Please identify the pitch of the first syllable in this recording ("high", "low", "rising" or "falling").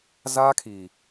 high